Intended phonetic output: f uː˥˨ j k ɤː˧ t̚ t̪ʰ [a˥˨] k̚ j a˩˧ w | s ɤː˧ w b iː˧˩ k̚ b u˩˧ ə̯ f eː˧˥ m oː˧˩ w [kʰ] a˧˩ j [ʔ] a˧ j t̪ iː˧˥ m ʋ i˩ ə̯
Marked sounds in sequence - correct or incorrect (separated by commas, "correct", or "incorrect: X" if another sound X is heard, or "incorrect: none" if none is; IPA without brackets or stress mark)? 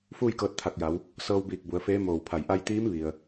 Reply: incorrect: a˧˩, incorrect: pʰ, correct